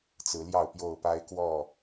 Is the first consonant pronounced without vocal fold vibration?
yes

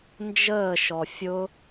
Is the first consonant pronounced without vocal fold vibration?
no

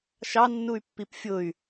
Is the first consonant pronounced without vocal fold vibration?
yes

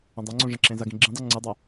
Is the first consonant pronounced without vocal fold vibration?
no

